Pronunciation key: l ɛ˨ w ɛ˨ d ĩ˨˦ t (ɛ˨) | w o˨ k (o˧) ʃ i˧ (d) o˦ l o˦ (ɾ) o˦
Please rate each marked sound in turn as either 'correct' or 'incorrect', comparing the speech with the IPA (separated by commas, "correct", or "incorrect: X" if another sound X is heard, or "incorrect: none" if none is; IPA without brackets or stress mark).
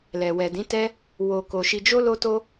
incorrect: ɛ˦, incorrect: o˨, incorrect: d͡ʒ, incorrect: t